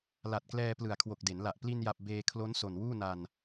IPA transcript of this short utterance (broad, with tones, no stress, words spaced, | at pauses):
la˨˩t̚klɛː˧ plɯ˨˩a̯kʰwo˨˩k̚de˩˦nla˨˩ʔ pli˧nja˨˩p̚ beː˧kʰlo˦˥n so˨˩nwuː˥˩na˧n